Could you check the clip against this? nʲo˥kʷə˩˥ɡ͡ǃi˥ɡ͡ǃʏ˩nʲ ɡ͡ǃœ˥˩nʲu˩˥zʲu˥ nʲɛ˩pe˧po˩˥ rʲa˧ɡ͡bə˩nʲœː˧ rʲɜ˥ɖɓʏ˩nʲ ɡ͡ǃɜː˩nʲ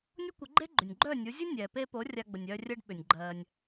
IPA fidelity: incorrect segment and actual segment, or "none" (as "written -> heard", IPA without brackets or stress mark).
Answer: i˥ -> e˥